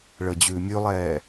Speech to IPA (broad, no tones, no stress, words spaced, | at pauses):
ɭəːd͡ʑʉːmʲʉlˠɛː